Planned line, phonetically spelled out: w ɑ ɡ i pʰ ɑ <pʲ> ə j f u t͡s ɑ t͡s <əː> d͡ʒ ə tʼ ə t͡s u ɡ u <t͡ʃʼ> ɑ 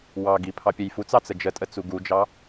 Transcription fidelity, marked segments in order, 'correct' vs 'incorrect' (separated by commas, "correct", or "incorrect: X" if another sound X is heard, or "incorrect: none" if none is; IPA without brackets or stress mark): correct, incorrect: ə, incorrect: d͡ʒ